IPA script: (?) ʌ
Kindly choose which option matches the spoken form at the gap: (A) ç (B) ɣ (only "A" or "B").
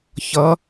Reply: A